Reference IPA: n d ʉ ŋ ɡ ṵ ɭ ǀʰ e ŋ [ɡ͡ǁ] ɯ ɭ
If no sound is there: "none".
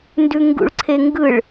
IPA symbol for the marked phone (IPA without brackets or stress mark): ɡ